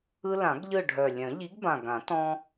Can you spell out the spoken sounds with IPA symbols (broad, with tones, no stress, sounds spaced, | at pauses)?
ɯ˦ l ã˨˩˦ ɡ ʎ ɯ˦˨ ɖʱ œ˨˩ lʲ œ̃˨˩˦ ʎ i˨˥ ɡ b ã˨˩ ɡ ã˨˩˦ t ɔ̃˦